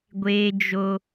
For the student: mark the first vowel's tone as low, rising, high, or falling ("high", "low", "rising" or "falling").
high